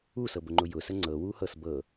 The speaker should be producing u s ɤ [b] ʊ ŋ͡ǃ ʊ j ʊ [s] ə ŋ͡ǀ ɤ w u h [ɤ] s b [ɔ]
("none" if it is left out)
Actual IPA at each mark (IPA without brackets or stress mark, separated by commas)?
b, s, ɤ, ɤ